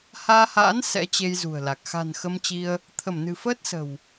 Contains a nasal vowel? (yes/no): no